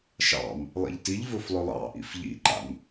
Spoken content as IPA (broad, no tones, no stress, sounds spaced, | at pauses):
ʃ ɑ̰ m | lˠ ḭ ʎ t i ʎ v ɵ f lˠ ɵ lˠ ɑ̰ ʔ ḭ f ʎ ḭ ǃ a̰ m